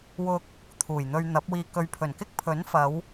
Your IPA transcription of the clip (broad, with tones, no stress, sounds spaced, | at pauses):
w ʊ˧ k̚ | t̪ʰ uː˨˩ j n̪ ɵ˧ ɥ n̪ ɐ˨˥ p̚ w iː˧ k ɵ˨ ɥ pʰ ɵ˨˩ n k ɪ˥ k̚ pʰ ɵ˨˥ n f ɐ˨˧ w